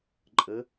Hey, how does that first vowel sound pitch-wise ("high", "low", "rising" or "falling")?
rising